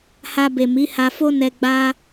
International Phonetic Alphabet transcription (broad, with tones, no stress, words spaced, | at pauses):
ha˧be˨mi˨˦ ha˧fo˦nɛ˧ ɡ͡ba˦